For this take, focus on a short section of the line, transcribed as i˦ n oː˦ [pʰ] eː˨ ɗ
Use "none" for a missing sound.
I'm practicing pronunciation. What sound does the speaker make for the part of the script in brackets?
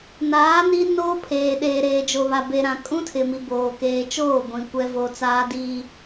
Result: pʰ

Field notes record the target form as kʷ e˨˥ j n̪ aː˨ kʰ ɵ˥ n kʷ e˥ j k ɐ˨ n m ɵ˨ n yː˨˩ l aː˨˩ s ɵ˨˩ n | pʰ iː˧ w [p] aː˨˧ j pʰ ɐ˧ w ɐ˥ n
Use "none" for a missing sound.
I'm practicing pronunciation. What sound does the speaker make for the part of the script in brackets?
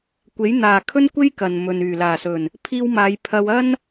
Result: m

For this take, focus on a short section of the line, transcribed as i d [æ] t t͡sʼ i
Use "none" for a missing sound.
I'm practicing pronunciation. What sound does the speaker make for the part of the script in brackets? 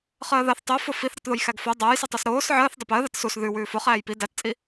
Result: æ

